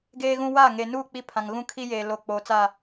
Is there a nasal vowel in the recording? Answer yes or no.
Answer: yes